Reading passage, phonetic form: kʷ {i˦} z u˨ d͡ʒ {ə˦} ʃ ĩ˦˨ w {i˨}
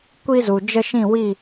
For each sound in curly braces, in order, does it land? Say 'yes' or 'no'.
yes, yes, no

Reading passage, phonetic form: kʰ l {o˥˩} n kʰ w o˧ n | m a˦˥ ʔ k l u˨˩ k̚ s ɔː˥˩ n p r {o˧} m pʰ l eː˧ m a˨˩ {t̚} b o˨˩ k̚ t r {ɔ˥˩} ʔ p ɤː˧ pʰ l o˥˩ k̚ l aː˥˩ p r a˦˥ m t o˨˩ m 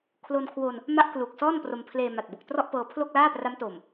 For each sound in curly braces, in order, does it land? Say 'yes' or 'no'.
no, yes, yes, yes

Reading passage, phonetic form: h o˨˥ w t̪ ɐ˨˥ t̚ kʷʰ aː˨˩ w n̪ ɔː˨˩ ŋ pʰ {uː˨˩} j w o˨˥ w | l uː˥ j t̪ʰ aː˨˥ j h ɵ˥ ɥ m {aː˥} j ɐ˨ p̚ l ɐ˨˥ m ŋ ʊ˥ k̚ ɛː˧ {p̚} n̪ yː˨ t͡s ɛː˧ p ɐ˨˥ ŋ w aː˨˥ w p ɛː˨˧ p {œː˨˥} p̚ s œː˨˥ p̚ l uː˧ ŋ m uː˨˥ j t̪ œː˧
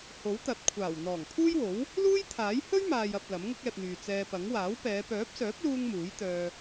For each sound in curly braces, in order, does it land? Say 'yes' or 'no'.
no, no, yes, yes

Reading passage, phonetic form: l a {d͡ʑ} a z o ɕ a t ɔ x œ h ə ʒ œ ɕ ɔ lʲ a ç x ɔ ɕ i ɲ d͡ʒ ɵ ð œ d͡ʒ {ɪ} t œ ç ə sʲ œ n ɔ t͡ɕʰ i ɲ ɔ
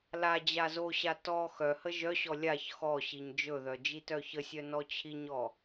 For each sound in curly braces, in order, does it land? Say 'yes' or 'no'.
yes, no

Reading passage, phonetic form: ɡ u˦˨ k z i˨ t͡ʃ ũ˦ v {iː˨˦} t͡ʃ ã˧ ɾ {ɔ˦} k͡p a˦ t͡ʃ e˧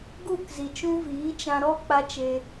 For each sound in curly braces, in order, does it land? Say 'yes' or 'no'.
yes, yes

